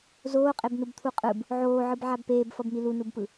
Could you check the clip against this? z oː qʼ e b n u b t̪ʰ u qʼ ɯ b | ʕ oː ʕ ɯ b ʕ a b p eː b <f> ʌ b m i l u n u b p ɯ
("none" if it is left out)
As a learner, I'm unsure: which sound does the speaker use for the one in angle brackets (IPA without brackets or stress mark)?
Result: f